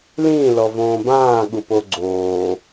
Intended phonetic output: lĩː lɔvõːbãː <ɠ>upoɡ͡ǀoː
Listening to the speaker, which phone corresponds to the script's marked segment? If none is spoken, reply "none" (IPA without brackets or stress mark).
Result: ɠ